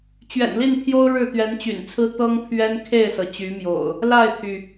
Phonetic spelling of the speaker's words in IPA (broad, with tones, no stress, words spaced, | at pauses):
t͡ɕɥɛ̰˨˩nli˥˨npʰjo˦ʊ̯ ɻɻ̩˥˨t̪ɥɛ˨˦nt͡ɕy̰˨˩nt͡sʰɹ̩˦ t̪ɤ˦ŋpʰɥɛ˦n kʰe˥˨ɪ̯sɤ˩ t͡ɕy˨˦mjo̰˨˩ʊ̯ | la˥˨ɪ̯t̪ʰy˩